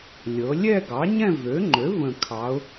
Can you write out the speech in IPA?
lʲ ɤ˩˧ lʲ ɛ˥˧ ɡ ɑ˩˥ ɲ ɛ̃˥˧ v ø˩˥ ŋ͡ǃ ø˩˥ v ə̃˨˩ kʰ ɑ˩˧ ʊ̯

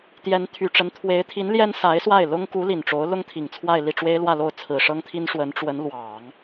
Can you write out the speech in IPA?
t̪ j ɛ˧˥ n t̪ʰ y˨˩ ʈ͡ʂ ə˧˥ n t̪ʰ w e˧˥ ɪ̯ t̪ʰ i˧˥ n l j ɛ˥ n s a˧˥ ɪ̯ s w a˥˩ ɪ̯ l ʊ˥ ŋ k u˧˥ l i˨˩ n ʈ͡ʂ o˧˥ ʊ̯ l ʊ˥ ŋ t̪ʰ i˨˩ ŋ t͡sʰ w a˥˧ ɪ̯ l i˥˩ ʈ͡ʂ w e˥ ɪ̯ l w ä˥˧ l o˥˩ ʊ̯ t͡sʰ ɹ̩˨˩ ʂ ɤ˥ ŋ t̪ʰ i˥ n ʂ w ə˧˥ n ʈ͡ʂ w ə˧˥ n l w ɑ˨˩˦ ŋ

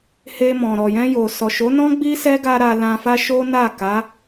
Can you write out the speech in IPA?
h e˧ m ɔ̃˨ ɾ ɔ˨ j ɛ̃˧ j o˨ s ɔ˨ ʃ o˨˦ n ɔ̃˦ ɡ͡b i˦ s ɛ˦ ɡ a˦ ɾ a˧ l ã˧ f a˦ ʃ o˦ n a˦˨ k a˨˦

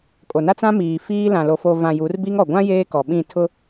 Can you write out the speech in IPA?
kʼ o˨ n a˦ t͡s ã˦ m iː˨ f iː˦ l ã˨ l o˨ f o˨ v ã˨ j u˨˦ r b i˦ ŋ ɔ˨ ɡʷ ã˦ j eː˦ k ɔ˨ ɓ ĩ˦˨ tʰ ʊ˦

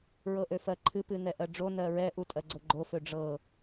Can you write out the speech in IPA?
ɹ ɤ ʔ ø f ɜ ǃʰ ɨ p ɨ n ɛ ʔ ɜ ɖ͡ʐ o n ɜ ɹ ɛ ʔ u tʼ ɜ ɡ͡ǀ ɤ ɡ͡ǃ o f ø ɖ͡ʐ ɤ

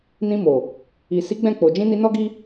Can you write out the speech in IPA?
n ĩ˧ m o˨ | i˨ s i˨˦ ɡ͡b ɛ̃˦˨ k͡p o˨ d͡ʒ ĩ˧ n i˧ n ɔ˦ ɡ i˦

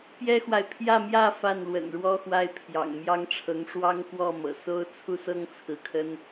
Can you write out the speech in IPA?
p j ɛ˥ x w a˨ ɪ̯ pʰ j ä˥˧ m j ä˥˧ f a˥˩ n l w ə̰˨˩ n ɻ w ɔ˥ x w a˥˩ ɪ̯ pʰ j ɑ̰˨˩ ŋ m j ɑ˥ ŋ ʈ͡ʂʰ ɤ˧˥ ŋ ʂ w ɑ˥ ŋ k w ɔ˥˩ m ɤ̰˨˩ s o˥ ʊ̯ t͡sʰ u˥˩ s ɤ˥ ŋ t͡sʰ ɹ̩˧˥ kʰ ə˥ n

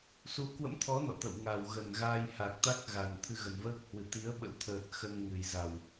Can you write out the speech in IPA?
s u˨˦ k w ə̰˧˥ m t̪ʰ ɔ˨˦ n ɔ̰˧˨ t̪ ə̰˧˨ w ŋ a˨˩ w ɣ ə˨˩ n ɣ aː˧ j h a˨˩ k̚ t̪ a˦˥ k̚ ɣ a˨˩ n t̪ʰ ɨ˧ ɣ ə˨˩ n v əː˦˥ k̚ h w ɨ˧˩ t̪ i˨˦ ə̯ ɓ ə̰˧˥ w t̪ʰ əː˨˩ t̚ x ə˧ n ŋ ɨ˨˩ j z a˨˩ w

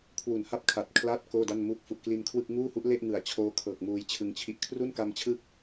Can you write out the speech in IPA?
kʰ w u˨˩ n h a˥˩ p̚ kʰ a˨˩ t̚ kʰ l aː˥˩ t̚ k oː˥˩ d a˥˩ n m uː˥˩ k̚ f u˨˩ ʔ k l i˧ n kʰ w ɯ˥˩ k̚ ŋ uː˥˩ h u˦˥ ʔ l e˥˩ ʔ ŋ ɯ˨˩ a̯ t͡ɕʰ oː˦˥ kʰ ɤː˨˩ k̚ m uː˧ j t͡ɕʰ ɯ˧ ŋ t͡ɕʰ i˥˩ ʔ kʰ r u˥˩ n k a˧ m t͡ɕʰ ɯ˦˥ k̚

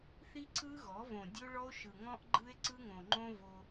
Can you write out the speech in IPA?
θ i˦ ǀ ɯ˦ ɣ ɔ˨˦ v õ˨ dʲ o˦ ɭ ɔ˦ o̯ ʃ ɯ˨ ŋ ɔ̃˦ ʔ ɡ͡ǃ ɯ˦ e̯ ǀ ɯ˦ ŋ õ˨ ŋ͡ǃ õ˦ v o˦

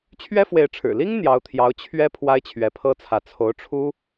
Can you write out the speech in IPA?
t͡ɕʰ ɥ ɛ˥ f w e˧˥ ɪ̯ ʈ͡ʂʰ ɻ̩˨˩ l i˥ ŋ n̪ j ɑ˧˥ ʊ̯ t̪ʰ j ɑ˧˥ ʊ̯ t͡ɕʰ ɥ ɛ˥ pʰ w a˥ ɪ̯ t͡ɕʰ ɥ ɛ˧˥ pʰ ɤ˥ t͡sʰ ä˧˥ t͡sʰ o˧˥ ʊ̯ ʈ͡ʂʰ u˥

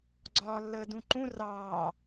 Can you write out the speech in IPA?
ɡ͡ǀ ɒː lː əː d ũ ǃ ũ r ɑː

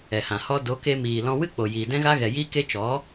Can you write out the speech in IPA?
ɛ˨ h ã˨ h ɔ˦ d o˨˦ k e˧ m iː˨ l ɔ̃˧ w ɨ˦ k͡p o˨ j iː˨ d ɛ̃˦ ɣ a˦ ɣ ɛ˨ j iː˦ k e˦ t͡ʃ ɔ˨˦

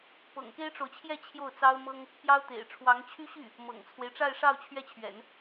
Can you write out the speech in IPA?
p ɤ̰˨˩ ŋ k e˥ ɪ̯ ʈ͡ʂ o˨ ʊ̯ t͡ɕʰ j ɛ˥˧ t͡ɕʰ j o˥˩ ʊ̯ t͡s ɑ˥ ʊ̯ m ɤ˥ ŋ | p j ɑ˥ ʊ̯ t̪ ḛ˨˩ ɪ̯ ʈ͡ʂʰ w ɑ˧˥ ŋ t͡ɕʰ y˥ ɕ y˥˩ | m ɤ̰˨˩ ŋ t͡sʰ w e˦ ɪ̯ ʈ͡ʂ a˥˧ ɪ̯ ʂ ɑ˥˧ ʊ̯ t͡ɕʰ ɥ ɛ˥˩ t͡ɕʰ ɥ ɛ̰˨˩˦ n

